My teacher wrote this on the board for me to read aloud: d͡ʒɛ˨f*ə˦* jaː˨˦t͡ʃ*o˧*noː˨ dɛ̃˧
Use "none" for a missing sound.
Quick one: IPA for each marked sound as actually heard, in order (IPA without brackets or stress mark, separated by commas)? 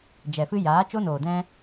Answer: ɨ˦, o˦